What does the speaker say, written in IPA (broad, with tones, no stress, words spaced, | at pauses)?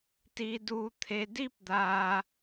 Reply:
ti˦du˦ t̪ʰe˧di˦pd̪a˧